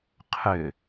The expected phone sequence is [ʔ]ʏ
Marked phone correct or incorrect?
incorrect